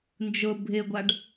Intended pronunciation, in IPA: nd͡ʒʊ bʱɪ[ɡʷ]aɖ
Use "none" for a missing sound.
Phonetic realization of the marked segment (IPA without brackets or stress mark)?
ɡʷ